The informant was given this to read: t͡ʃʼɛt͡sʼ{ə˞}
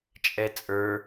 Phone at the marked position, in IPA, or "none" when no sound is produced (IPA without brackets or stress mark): ə˞